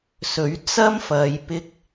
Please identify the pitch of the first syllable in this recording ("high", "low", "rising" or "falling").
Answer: rising